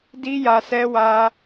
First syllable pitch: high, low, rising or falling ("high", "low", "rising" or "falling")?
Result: high